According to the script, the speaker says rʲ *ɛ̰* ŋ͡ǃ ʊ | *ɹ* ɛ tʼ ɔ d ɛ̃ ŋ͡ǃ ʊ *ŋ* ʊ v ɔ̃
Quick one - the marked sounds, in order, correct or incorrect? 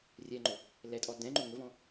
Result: incorrect, incorrect, correct

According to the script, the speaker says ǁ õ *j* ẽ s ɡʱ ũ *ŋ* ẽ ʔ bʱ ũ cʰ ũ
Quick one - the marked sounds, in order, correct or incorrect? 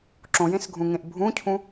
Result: correct, correct

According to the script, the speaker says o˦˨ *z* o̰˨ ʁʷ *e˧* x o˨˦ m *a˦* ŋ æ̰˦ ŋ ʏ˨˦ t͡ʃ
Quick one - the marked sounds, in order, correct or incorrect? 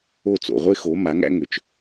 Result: incorrect, incorrect, incorrect

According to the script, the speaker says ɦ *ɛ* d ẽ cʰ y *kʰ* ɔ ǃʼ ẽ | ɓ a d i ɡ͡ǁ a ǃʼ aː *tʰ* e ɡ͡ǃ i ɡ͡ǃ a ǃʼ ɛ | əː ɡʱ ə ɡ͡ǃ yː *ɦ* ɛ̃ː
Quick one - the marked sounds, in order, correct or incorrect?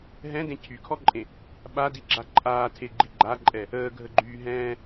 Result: incorrect, correct, correct, correct

